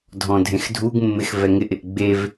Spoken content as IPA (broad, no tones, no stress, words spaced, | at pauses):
dʱɔ̃dʱẽxdʱuɡmːɪx vɛŋɪʔɪʔ ɡ͡bev